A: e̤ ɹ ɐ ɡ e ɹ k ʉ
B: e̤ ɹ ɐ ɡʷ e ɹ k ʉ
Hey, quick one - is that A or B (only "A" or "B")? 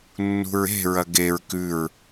A